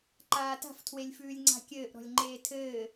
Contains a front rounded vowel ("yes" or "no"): no